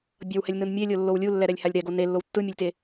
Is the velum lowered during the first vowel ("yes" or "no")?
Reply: no